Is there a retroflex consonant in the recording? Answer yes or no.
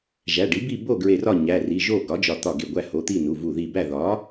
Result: yes